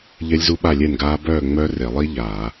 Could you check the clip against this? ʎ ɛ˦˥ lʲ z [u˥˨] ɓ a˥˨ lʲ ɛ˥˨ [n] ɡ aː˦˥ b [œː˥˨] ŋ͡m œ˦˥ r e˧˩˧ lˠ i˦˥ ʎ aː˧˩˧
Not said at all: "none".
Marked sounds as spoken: u˦˥, n, œː˥˨

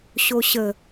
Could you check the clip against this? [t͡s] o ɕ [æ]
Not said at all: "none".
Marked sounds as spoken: ɕ, ə

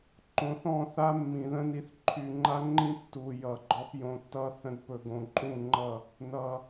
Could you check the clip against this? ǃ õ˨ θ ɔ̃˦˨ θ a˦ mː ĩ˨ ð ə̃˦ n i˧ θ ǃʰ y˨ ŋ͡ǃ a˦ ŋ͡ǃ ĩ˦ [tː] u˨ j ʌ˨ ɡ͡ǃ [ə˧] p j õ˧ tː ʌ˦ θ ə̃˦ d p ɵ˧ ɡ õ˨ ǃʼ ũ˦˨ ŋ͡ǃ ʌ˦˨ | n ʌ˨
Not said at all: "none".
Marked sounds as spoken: tː, ɔ˧

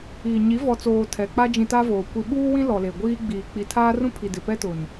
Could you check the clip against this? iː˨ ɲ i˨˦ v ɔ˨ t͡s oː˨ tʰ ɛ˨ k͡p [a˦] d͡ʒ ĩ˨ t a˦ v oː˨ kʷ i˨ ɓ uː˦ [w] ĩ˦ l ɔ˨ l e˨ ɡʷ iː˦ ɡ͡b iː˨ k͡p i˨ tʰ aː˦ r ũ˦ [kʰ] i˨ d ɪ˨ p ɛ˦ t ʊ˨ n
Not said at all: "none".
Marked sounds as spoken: a˦, w, pʰ

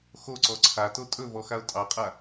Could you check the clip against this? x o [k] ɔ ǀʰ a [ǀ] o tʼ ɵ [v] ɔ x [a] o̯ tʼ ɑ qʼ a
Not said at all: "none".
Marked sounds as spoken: ǀ, t, v, a

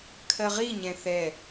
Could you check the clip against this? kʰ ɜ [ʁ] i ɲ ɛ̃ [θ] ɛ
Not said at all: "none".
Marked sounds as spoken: ʁ, θ

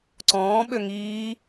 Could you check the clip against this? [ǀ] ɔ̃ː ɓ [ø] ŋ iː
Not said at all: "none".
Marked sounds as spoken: ǀ, ø

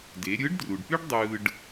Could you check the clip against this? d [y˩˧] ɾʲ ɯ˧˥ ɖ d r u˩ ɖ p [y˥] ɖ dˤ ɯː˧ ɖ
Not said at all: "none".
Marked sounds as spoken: e˩˧, y˥

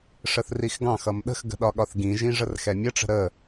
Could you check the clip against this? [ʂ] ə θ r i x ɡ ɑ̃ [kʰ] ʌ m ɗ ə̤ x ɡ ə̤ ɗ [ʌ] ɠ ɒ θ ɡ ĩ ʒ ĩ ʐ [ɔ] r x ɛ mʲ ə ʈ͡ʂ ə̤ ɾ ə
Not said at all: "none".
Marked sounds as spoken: ʂ, x, ɒ, ə

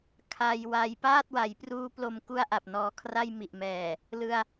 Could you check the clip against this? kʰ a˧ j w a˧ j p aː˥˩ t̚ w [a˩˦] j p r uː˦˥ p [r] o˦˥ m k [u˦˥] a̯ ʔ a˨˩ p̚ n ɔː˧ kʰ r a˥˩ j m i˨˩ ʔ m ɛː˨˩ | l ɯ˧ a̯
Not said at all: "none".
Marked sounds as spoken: a˩˦, l, u˥˩

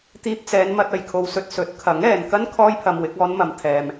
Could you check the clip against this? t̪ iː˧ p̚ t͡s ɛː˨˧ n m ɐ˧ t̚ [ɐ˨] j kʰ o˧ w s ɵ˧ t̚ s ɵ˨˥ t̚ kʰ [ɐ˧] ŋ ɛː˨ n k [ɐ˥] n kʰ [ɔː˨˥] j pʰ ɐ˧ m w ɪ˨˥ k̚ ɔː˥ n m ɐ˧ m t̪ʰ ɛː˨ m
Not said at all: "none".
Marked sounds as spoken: ɐ˨, ɐ˨˥, ɐ˥, ɔː˥

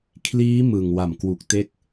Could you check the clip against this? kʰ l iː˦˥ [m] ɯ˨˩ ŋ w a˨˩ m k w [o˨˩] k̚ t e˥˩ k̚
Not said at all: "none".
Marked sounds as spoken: m, u˨˩

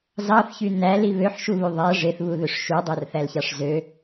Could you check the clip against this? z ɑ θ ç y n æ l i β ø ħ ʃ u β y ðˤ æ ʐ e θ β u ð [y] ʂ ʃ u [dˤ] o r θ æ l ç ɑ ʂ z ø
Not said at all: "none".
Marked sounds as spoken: ø, dˤ

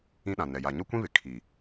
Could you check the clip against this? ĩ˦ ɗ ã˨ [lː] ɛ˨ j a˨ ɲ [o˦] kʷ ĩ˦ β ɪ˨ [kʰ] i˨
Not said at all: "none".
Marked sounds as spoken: n, o˦, kʰ

